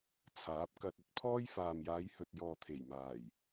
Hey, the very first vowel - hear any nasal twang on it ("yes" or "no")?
no